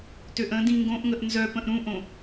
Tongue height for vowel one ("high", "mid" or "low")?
mid